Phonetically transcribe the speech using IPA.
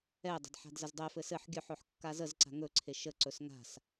ɛ dˤ ə̤ d ħ a̤ d z ə z dˤ ɛ f ɘ s ɘ ħ ɡʲ œ ħ ɵ ħ kː a z ə z ǀ a̤ ŋ ɵ ǀʰ e ʃ ə ǀ ɵ s ŋ a̤ s

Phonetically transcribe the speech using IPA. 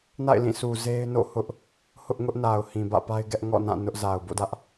n a̰˦˨ ɪ̯ l ĩ˦˨ sʰ u˨ z e˦ ɪ̯ n o̰˦˨ h ʊ˦ ʔ | h ʊ˦ ʔ ŋ ʊ˦ ʔ n a˨ ʊ̯ h ĩ˨ b ä̰˦˨ p a˦ ɪ̯ ɡ ɛ˦ ʔ ŋ ɔ̰˦˨ n ã˦˨ n ʊ˦ ʔ z a˨ ʊ̯ b o̰˦˨ d ä˦ ʔ

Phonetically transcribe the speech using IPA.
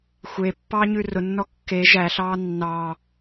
xʷ e pː ɑ ɲ ʉ r ʊ nː ɔ kː e ʒ æ ɬ ɑː nː ɑ

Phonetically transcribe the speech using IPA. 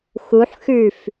x u ħ x ʉ f

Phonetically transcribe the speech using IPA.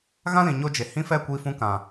ɣ ã˦ l ĩ˨ ɲ o˧ d͡ʒ e˨ h ĩ˦ f ɛ˦˨ kʷ i˧ f ũ˧ k ã˨

